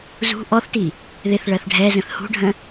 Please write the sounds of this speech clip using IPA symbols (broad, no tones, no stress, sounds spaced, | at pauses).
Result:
z ṳ ʔ ɔ θ t i | ð ɪ θ ɭ ɜ θ ɖʱ ɛ z ə̃ θ h ṳ ɖʱ ə̃